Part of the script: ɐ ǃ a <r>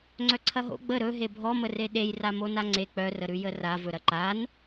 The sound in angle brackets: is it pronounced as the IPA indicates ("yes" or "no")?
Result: no